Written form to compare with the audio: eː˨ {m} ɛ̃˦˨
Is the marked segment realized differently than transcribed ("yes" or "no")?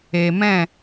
no